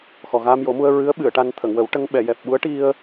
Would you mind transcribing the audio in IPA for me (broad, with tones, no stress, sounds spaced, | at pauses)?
x ɔ˨˩ ɣ aː˧ m j o˨˩˦ m u˧ ə̯ ɹ ɨ˧˥ ə̯ ɓ ɨ˨˩˨ ə̯ ʈ a˧ n t̪ʰ ə˨˩˨ ŋ w ə˨˩˦ w ʈ ə˧ ŋ ɓ ɛ˨˩˨ j ɛ˨˩ p̚ ɓ u˧˥ ə̯ ʈ i˧ ə̯